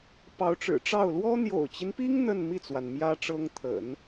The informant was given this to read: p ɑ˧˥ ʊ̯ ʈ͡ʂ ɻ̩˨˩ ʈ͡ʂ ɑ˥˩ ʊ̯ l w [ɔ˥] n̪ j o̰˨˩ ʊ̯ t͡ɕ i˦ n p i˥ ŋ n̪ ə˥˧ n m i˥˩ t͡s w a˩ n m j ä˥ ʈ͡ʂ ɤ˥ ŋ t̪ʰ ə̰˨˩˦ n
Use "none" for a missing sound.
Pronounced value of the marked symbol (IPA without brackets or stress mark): ɔ˥